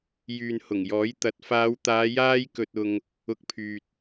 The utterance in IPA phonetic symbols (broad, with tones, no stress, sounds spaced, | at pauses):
j yː˨ n h ʊ˨˩ ŋ j ɔː˨˥ j t̪ ɐ˨˥ t̚ f aː˨˧ w t̪ aː˨˧ j aː˥ j k ɵ˧ t̚ ʊ˧ ŋ | ʊ˨˥ k̚ pʰ yː˨ t̚